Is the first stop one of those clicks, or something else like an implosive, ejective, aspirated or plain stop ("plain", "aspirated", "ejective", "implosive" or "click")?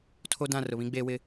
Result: aspirated